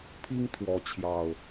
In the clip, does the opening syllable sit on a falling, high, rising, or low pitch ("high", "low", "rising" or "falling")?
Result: high